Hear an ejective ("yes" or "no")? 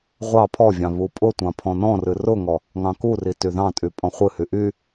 yes